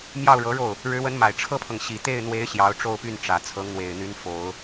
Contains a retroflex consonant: yes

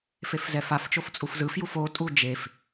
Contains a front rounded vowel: no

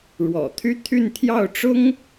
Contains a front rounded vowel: yes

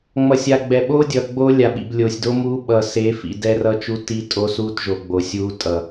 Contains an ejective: yes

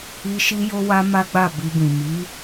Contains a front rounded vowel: no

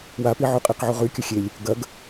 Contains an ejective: yes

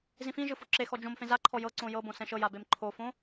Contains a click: yes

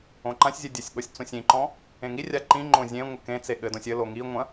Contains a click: yes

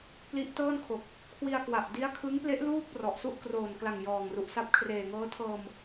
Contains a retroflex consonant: no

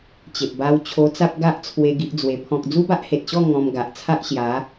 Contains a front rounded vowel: no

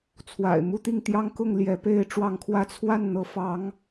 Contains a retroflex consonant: yes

